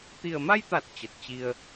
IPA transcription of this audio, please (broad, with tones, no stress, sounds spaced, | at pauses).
t̪ i˨˩ ə̯ m a˧ j t̪ a˨˩ t̚ t͡ɕ ə˨˩ t̚ t͡ɕ i˧ ə̯